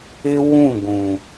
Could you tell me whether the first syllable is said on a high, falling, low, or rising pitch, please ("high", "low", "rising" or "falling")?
high